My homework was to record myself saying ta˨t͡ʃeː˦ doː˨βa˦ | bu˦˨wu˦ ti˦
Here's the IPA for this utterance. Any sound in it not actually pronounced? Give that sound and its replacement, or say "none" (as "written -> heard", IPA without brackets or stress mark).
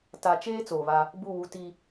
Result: d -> t͡s